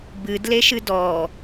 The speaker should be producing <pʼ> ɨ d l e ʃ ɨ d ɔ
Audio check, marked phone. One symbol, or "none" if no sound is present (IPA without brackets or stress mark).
b